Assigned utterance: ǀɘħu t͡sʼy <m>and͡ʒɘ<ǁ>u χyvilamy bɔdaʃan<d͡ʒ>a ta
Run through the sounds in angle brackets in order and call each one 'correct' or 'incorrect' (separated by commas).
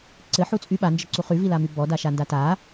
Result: incorrect, incorrect, incorrect